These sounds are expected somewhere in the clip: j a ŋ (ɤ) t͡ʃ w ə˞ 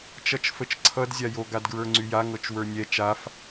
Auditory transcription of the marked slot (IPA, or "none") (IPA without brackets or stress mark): ɤ